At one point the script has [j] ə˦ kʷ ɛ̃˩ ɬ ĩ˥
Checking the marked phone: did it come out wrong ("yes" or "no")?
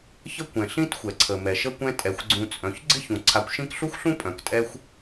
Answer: yes